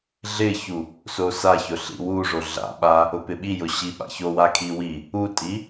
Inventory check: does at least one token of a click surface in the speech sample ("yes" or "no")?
no